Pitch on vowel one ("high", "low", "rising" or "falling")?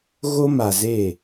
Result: high